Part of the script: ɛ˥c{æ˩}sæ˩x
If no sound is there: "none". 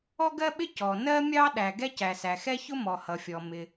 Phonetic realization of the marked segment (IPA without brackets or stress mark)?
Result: æ˩